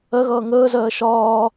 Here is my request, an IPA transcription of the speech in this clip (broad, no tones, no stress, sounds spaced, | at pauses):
ɜ ɣ ʌː ŋ əː z ɜː ʃ ɒː